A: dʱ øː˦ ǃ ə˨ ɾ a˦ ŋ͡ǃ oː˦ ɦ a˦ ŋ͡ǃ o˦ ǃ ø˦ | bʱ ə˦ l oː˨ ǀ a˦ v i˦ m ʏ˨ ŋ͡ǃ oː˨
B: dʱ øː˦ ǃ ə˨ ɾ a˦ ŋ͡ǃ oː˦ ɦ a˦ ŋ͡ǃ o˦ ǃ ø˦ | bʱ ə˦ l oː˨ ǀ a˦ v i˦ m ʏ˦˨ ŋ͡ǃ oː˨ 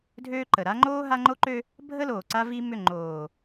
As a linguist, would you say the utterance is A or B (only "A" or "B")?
B